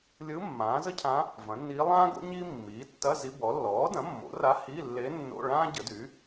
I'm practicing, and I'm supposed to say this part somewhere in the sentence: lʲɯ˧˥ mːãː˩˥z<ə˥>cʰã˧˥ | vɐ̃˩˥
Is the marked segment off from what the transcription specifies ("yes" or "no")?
no